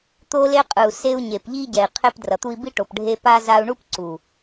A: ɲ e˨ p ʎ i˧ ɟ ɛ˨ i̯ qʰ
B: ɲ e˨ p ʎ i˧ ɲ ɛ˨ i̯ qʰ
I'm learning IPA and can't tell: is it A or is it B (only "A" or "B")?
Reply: A